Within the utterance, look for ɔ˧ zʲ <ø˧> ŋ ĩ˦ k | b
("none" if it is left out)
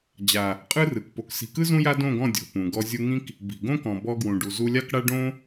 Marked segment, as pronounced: u˧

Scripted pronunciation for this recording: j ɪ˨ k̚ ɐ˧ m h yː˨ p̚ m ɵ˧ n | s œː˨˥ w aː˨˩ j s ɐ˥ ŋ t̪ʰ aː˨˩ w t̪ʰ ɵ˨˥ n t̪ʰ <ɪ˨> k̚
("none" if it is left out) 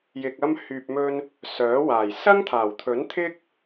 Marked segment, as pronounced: ɪ˥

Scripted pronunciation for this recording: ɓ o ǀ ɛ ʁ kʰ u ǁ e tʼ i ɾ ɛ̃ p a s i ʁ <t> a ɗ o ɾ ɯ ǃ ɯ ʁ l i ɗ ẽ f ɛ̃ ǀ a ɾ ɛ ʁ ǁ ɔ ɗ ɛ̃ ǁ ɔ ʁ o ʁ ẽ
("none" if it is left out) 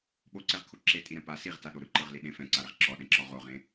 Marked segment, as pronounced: t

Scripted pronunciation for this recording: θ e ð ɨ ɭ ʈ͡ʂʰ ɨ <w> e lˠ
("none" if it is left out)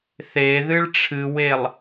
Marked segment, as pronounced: w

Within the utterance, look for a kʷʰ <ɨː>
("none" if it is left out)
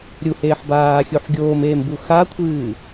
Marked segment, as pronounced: ɨː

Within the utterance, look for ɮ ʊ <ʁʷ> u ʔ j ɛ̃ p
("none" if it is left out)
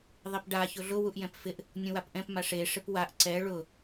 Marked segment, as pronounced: w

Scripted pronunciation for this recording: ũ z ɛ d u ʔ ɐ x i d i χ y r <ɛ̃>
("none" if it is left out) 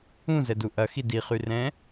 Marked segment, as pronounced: ɛ̃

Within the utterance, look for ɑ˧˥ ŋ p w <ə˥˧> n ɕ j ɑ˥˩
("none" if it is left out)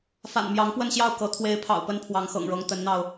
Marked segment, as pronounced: ə˥˧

